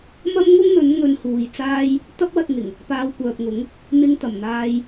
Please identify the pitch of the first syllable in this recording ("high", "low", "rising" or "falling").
high